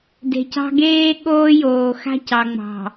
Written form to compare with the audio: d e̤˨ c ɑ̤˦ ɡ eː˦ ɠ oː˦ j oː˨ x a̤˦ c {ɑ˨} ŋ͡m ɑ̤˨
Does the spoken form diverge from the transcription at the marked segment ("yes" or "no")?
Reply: no